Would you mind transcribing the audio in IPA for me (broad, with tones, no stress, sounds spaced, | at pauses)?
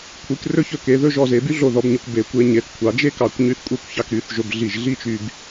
kʷʰ i˩˧ k r ɵ˥ ç ɵ˧ k e˩˧ ð ɵ˥˧ ʒ ɔ˧ z e˩˧ b y˥ ɮ o˧˩ ð ɔ˩˧ b ɲ ɵ˩˧ kʷ b e˩˧ kʷ e˧ ɲ e˩˧ θ kʷʰ ɑ˩˧ d͡ʒ e˥ k ɑ˧˩ kʷ ɲ y˧ θ kʷʼ e˥˧ kʷ ç ɑ˧ k ɾ y˩˧ θ ʒ ɵ˧ b ɮ i˧˩ ʒ ɮ i˥˧ t͡ʃ y˧ b